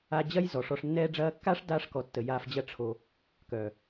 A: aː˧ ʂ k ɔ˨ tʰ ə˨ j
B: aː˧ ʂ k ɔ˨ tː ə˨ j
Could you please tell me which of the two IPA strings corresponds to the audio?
B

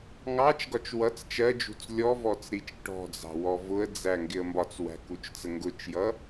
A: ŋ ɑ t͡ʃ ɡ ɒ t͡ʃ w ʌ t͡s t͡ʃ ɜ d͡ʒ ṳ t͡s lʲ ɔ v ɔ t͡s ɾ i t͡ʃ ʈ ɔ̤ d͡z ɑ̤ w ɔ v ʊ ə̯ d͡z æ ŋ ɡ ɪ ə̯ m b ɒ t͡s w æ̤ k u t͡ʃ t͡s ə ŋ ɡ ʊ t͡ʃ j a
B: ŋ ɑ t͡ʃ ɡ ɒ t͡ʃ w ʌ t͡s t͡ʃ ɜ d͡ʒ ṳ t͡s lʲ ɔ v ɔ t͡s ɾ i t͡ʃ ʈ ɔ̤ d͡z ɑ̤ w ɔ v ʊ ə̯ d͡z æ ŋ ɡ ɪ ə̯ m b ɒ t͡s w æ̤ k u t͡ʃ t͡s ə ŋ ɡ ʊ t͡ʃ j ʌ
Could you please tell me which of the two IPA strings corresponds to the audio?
B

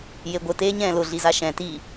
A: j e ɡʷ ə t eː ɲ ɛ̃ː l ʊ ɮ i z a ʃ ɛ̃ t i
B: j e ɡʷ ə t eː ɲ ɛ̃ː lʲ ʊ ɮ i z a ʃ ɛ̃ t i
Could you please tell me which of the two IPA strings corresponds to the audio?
A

